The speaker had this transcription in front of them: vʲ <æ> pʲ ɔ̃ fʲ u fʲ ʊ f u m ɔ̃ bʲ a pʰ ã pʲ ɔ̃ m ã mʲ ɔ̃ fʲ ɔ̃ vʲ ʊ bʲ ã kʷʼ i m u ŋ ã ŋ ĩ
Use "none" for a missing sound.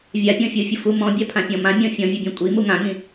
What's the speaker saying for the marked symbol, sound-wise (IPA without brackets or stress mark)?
a